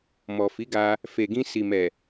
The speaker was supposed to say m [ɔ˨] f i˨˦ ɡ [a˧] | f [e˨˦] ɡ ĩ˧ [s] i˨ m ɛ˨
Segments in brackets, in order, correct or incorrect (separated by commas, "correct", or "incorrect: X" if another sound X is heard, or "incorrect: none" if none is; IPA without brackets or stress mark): correct, correct, incorrect: e˨, correct